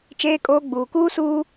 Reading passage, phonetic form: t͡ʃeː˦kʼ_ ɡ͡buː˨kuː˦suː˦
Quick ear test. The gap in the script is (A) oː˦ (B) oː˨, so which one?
A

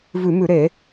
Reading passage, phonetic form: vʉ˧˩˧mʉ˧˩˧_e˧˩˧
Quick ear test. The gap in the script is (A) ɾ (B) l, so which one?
A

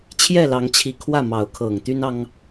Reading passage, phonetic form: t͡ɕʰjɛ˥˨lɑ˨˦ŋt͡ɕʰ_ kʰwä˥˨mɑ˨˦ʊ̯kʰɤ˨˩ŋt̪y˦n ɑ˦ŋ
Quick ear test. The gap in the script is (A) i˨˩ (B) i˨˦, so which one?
A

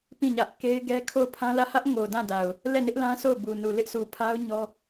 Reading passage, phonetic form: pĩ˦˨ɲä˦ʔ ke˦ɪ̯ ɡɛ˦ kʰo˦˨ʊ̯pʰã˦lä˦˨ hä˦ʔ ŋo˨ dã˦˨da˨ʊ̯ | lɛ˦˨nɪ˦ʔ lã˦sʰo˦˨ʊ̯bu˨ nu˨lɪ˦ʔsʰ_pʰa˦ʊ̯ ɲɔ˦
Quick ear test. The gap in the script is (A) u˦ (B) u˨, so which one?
B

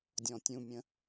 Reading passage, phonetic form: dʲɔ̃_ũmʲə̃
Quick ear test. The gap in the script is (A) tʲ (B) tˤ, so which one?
A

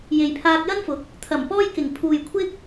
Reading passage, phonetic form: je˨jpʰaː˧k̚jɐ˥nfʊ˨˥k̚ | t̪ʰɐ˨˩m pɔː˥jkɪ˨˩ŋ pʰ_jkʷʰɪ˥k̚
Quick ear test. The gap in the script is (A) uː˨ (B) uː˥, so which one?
A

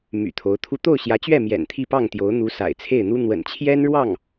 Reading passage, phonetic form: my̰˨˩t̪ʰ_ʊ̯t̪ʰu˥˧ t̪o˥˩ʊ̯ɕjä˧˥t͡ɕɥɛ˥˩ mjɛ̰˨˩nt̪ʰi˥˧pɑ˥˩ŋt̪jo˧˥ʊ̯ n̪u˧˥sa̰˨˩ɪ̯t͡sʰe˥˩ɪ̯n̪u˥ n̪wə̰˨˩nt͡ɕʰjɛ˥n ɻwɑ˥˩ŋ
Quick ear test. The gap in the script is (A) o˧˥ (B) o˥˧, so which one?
A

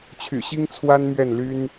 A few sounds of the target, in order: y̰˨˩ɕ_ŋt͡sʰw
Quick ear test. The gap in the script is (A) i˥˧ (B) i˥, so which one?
B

